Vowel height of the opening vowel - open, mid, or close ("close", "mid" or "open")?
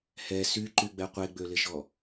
mid